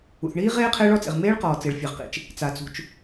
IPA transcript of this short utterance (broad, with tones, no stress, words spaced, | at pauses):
ṵ˩θɳiː˦˥ʁeː˦˥ qʰɪː˦˥ɭɔ˦˥t͡sḛ˩ʁ meː˦˥ɭqɔː˩ t͡se˩ɭfʲɛ˩ʁqḭ˩t͡ʃ | t͡sa˩t͡sṳ˩t͡ʃ